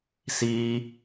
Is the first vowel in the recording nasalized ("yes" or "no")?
no